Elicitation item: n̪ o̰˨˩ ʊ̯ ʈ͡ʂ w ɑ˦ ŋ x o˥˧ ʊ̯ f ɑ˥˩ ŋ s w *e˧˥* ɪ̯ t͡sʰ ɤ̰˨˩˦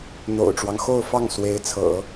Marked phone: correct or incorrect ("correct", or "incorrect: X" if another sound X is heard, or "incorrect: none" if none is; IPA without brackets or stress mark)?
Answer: correct